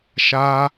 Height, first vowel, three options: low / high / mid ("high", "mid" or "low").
low